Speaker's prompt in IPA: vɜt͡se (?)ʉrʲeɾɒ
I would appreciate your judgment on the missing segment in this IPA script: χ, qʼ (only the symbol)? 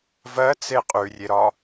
qʼ